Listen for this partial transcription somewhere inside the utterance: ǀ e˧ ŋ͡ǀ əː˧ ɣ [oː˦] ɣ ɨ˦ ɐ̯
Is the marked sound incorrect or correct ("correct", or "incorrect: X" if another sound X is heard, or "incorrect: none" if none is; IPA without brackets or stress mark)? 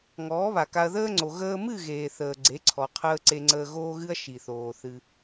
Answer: correct